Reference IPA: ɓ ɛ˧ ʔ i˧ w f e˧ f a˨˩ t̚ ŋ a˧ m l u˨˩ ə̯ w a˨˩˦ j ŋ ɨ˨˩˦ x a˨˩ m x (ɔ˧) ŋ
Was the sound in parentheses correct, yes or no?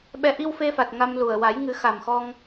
yes